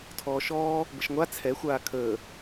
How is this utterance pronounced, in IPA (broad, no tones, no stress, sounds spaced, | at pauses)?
tʰ ɔː ʃ ɔː | b ə ʃ ŋʷ a t͡sʰ ɛ xʷ aː kʰ əː